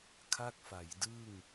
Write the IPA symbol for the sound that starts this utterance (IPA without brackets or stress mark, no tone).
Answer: kʰ